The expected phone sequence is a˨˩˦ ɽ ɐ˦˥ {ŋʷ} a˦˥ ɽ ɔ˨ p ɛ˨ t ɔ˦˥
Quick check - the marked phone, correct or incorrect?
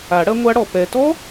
correct